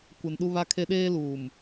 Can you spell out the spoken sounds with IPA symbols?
kʷ ɪ˨ n ɗ u˦ β a˦ kʰ e˦ ɗ eː˦ l uː˨ m

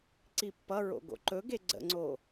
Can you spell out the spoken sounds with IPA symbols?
ǀ i pː ʌ ɹ o̰ ɡ o̰ ǃ ɵ ɡ e ɡ͡ǀ ə̰ ŋ͡ǀ o

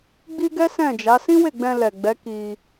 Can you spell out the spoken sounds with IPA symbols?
ɡ͡b i˦ ɡ ɛ˦ s ɛ̃˦˨ d͡ʒ a˨˦ s ĩ˦ w e˦˨ ɡ͡b ɛ̃˧ l ɛ˨ ɡ͡b ɛ˨˦ k i˧

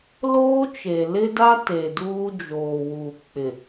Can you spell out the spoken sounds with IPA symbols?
l oː˦ t͡ʃ e˨ l ɪ˦ d a˦ t e˨ d uː˦ d͡ʒ oː˨ w uː˨ k͡p ɪ˨

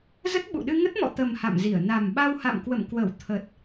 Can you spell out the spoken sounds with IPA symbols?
z ə˦˥ t̚ ɓ ṵ˧˨ ɗ ɨ˧ ŋ ə˦˥ t̚ m ɔ̰˧˨ t̪ ə˨˩ m h a̰˧˨ m z i˧˩ ə̯ n a˨˩ m ɓ a˧ w h a̰˧˨ m k w ə̰˧˨ m k w ə˧˩ w t̪ʰ ə˨˩ t̚

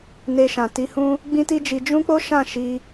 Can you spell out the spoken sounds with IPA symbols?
n e˧ ʃ ã˨ t i˧ h ũ˦ | ɡ͡b ĩ˦ t i˦ d͡ʒ i˧ d͡ʒ ũ˦ k͡p o˦ ʃ ã˦˨ ʃ i˧

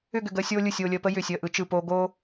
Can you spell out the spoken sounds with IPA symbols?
ʏ˥˧ ɡ ʏ˧˩ ɡ əː˧ sʲ oː˥ lʲ ɯ˧˩ sʲ o˥˧ lʲ əː˧ p ə˥ j ʏː˧˩ sʲ əː˧ ʔ ɯ˩˧ t͡ʃ ɯ˧˩ p oː˧ ɡ oː˥

